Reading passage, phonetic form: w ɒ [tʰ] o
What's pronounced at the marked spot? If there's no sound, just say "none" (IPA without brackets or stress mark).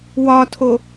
tʰ